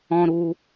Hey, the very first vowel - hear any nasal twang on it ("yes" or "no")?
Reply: yes